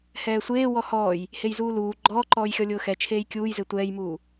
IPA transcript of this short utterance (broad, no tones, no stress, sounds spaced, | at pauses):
h ɛː sʷ eː w ɔ h ɔː j | h e j z uː l uː ɡ͡ǃ ɔː ǃ ɔː j xʲ ɔ lʲ ʊː x ɛ t͡ʃʰ eː j kʲ uː j z e tʷ ɛː j m uː